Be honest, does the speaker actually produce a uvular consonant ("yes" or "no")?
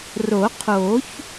yes